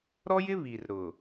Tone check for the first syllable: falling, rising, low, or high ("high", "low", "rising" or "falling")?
high